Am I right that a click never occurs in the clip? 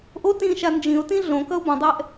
yes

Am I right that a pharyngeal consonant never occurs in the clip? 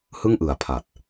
yes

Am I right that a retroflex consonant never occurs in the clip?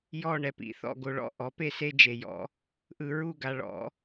no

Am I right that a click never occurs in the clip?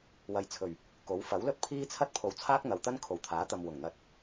yes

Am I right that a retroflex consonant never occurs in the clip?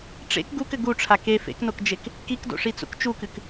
no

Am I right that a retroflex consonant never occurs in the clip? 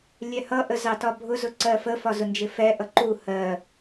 yes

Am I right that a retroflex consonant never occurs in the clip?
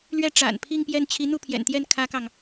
no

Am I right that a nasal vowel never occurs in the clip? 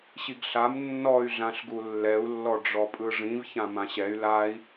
no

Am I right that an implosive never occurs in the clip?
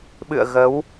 no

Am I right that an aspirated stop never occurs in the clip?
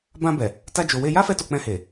yes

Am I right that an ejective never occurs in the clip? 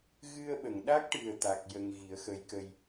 yes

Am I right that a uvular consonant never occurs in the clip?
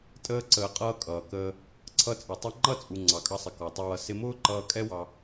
no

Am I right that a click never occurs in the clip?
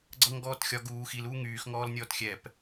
no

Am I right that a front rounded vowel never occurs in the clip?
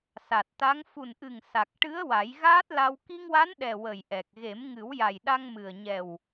yes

